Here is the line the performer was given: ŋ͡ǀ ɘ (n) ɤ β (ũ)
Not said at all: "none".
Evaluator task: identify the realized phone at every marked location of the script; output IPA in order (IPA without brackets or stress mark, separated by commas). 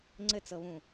t͡s, ũ